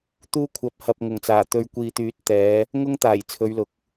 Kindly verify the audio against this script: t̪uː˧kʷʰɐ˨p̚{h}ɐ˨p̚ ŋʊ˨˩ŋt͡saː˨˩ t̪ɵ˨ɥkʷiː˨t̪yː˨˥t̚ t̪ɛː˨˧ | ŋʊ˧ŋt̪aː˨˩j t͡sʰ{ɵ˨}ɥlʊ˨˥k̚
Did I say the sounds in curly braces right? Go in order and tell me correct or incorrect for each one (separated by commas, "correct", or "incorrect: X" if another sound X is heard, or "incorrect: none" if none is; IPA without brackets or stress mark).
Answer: correct, incorrect: ɵ˨˧